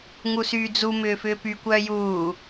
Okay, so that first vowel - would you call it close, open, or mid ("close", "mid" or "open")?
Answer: close